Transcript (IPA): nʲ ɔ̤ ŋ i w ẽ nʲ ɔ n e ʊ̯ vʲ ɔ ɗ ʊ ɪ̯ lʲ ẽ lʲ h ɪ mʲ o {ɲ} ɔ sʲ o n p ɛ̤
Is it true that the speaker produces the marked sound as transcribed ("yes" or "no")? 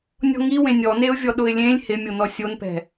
no